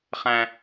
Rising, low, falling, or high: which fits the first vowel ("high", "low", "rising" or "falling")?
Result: high